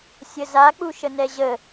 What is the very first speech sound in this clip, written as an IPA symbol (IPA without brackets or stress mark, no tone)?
sʲ